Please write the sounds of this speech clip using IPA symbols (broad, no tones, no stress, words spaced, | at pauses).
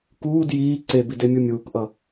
kuːd jiː ǀebidemʲu mʲuːkʔʌ